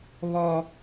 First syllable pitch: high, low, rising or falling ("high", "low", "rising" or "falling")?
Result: high